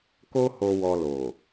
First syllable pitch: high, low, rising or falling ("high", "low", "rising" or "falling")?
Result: high